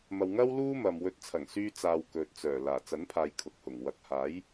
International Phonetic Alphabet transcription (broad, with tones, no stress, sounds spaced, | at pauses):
m ɐ˨ w ŋ ɐ˥ w l uː˥ m ɐ˨ m w ɵ˧ t̚ t͡sʰ ɐ˨˩ ŋ s yː˧ t͡s aː˨ w k ɵ˨ t̚ t͡s œː˨˩ l aː˨˩ t͡s ɐ˨˥ n pʰ aː˨ j kʰ ʊ˨ k̚ h ʊ˨˩ ŋ w ɐ˨ k̚ h aː˨˥ j